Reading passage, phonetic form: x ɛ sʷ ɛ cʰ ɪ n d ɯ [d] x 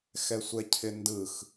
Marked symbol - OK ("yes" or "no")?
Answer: no